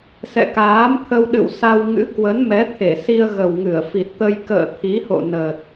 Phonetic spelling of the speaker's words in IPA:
s ɛ̰˧˨ k aː˨˦ m t̪ʰ ə˧ w ɗ ɨ̰˧˨ w s a˧ w ŋ ɨ̰˧˥ k w ə˨˦ n m ɛ˨˦ t̪ʰ e˧˩ s i˧ ə̯ ɣ ə˨˩ w ŋ ɨ˧˩ ə̯ f i˨˩ t̚ t̪ ə˧ j k ə̰ː˧˨ t̪ʰ i˨˦ h o̰˧˨ n ə˨˩ t̚

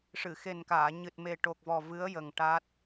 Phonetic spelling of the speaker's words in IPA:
ʂ ɨ˨˩˨ x e˨˩ n k aː˨˩˨ ɲ ɨ˨˩ t̚ m e˨˩ ʈ o˨˩ k̚ v ɔ˨˩ v ɨ˧˥ ə̯ j ə˨˩ ŋ ʈ a˦˥ t̚

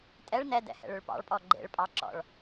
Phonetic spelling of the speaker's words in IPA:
tʼ ɛ ɭ n ɛ d ɛ̰ h ɛ̰ ɭ ø ɭ p ɑ̰ ɭ pʼ ɔ ɡ͡ǃ ḛ ɭ pʼ ɑ ǁ ɔ̰ ɭ

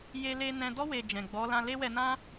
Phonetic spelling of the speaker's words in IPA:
j e˧ l e˧ n ɛ̃˧ d ɔ˦ w e˧ d͡ʒ ɛ̃˨ ɡ͡b ɔ˨˦ l ã˧ l e˦ w ɛ˧ n ã˦

